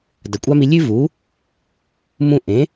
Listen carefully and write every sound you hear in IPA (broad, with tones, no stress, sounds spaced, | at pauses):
d ɐ˩ kʷʼ a˥ m i˧ lʲ ʉ˥ v u˩˥ | m ũ˧ ʔ ẽ˩˥